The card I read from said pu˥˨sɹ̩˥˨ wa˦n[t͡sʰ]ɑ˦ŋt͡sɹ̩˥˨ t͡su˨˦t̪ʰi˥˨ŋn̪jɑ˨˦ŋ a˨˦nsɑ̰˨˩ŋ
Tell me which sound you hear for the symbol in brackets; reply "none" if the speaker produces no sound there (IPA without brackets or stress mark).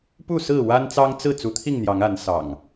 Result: t͡s